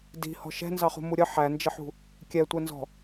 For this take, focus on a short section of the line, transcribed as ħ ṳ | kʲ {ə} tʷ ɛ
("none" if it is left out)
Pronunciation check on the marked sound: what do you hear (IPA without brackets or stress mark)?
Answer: ɛ